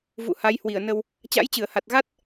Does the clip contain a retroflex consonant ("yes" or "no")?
no